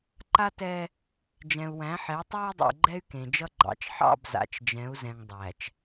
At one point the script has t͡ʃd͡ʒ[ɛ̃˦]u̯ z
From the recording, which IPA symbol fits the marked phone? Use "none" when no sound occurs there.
ɛ̃˨˦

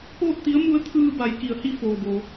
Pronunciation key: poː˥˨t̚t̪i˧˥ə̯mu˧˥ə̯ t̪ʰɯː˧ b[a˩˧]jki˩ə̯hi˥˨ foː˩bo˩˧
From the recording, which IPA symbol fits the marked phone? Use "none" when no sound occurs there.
a˩˧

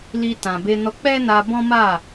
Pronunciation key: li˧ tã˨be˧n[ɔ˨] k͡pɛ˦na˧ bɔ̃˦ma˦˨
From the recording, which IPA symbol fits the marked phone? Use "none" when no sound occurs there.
ɔ˧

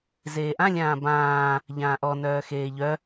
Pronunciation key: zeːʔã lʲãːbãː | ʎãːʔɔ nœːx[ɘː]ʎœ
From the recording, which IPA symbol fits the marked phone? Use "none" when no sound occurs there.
eː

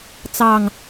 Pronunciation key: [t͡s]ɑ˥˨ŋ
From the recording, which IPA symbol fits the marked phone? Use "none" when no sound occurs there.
t͡s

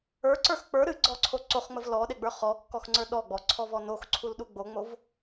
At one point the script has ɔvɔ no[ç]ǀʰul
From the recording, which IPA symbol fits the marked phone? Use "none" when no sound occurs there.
x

